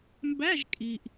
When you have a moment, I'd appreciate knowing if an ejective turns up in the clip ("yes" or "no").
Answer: yes